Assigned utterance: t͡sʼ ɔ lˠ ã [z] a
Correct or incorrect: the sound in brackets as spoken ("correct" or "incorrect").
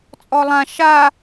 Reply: incorrect